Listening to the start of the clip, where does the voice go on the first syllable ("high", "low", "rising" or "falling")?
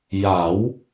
rising